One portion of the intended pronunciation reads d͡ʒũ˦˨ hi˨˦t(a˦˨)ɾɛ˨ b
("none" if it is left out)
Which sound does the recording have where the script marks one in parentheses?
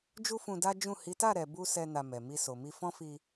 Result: a˦˨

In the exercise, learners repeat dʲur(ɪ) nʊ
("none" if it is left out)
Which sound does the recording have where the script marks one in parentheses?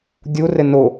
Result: ɪ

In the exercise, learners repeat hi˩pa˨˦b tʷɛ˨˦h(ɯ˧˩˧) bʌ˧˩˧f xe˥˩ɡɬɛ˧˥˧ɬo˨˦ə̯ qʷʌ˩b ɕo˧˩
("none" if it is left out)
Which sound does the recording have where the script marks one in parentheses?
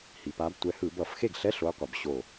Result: ɯ˧˩˧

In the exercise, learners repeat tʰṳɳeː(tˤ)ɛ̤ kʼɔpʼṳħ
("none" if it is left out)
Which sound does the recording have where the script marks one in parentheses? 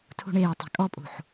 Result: tˤ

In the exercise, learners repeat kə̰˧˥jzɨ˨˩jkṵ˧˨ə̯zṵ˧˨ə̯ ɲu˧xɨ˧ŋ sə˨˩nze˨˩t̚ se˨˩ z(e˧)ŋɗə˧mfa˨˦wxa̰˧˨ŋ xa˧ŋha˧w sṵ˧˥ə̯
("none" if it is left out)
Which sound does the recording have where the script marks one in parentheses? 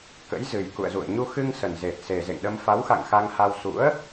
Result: ḛ˧˨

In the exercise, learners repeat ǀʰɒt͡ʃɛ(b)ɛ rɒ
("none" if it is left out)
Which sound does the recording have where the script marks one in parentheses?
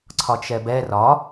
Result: b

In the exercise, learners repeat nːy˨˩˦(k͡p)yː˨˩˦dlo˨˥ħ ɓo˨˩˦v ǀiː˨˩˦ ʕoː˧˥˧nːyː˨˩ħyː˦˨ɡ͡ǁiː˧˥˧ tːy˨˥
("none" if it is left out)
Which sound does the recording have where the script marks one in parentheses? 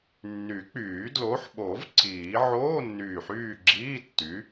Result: k͡p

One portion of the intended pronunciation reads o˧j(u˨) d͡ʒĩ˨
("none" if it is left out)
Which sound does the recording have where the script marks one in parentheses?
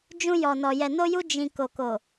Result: u˧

